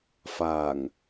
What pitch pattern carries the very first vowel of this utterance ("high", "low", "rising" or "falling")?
low